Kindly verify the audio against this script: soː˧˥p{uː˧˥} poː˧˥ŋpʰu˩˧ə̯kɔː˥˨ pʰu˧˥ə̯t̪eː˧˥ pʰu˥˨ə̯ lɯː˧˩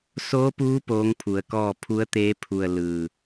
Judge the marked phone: correct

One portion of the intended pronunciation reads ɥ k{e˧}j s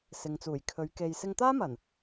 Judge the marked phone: correct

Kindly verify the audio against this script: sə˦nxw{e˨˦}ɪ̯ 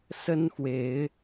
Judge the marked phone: correct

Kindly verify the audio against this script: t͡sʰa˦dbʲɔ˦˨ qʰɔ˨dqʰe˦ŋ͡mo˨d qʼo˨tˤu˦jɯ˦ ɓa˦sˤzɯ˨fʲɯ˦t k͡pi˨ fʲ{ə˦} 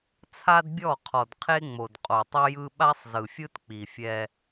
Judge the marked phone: incorrect: ɛ˦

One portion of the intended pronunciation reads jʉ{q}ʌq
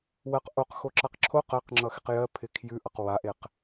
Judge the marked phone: incorrect: ʔ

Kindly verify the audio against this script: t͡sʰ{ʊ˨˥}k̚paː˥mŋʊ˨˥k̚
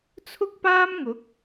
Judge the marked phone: incorrect: ʊ˥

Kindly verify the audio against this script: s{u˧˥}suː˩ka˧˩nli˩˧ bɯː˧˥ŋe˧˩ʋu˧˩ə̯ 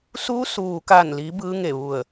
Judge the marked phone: correct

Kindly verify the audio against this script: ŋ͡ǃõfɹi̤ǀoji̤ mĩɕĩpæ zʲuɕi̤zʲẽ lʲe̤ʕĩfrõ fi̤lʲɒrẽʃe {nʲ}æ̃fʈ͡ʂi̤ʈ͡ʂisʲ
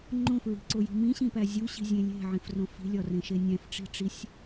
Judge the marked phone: correct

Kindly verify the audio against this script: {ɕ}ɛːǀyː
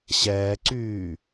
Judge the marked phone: correct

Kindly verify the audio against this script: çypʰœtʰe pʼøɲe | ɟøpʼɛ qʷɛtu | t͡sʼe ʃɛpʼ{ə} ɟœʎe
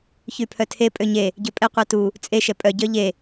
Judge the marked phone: incorrect: œ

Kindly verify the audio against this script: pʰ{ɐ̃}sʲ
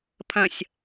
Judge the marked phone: correct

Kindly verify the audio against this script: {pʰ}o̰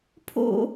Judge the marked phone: correct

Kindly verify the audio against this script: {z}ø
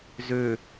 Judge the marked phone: correct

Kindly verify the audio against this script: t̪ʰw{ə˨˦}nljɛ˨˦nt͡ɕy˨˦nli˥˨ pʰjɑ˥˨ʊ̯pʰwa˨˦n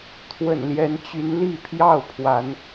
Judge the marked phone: incorrect: ə̰˨˩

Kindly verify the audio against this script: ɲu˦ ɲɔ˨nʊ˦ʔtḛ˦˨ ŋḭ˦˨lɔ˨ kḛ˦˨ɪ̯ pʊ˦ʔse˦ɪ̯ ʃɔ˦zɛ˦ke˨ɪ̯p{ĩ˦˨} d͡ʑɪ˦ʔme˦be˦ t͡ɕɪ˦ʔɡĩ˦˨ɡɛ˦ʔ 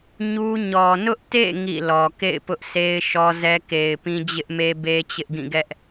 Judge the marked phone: incorrect: ĩ˦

